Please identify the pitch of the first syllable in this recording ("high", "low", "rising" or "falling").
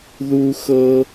high